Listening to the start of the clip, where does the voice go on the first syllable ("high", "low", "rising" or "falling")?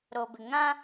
low